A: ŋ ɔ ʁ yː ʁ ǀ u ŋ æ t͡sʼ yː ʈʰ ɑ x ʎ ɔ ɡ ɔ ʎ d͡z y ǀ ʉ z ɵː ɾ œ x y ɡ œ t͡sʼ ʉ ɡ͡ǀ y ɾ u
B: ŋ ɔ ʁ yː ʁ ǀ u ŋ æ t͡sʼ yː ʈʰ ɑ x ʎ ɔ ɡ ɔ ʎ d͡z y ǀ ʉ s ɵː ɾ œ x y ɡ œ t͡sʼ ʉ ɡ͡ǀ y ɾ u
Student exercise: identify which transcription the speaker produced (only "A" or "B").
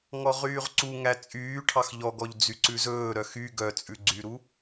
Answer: A